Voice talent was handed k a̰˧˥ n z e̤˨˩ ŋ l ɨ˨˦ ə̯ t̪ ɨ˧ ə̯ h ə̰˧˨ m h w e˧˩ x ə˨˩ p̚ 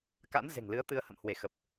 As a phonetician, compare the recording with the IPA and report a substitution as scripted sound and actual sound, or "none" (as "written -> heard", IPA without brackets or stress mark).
none